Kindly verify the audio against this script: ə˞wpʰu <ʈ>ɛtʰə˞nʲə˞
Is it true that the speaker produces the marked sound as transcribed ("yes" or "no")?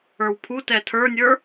no